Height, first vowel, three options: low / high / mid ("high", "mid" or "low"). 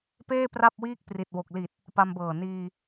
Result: mid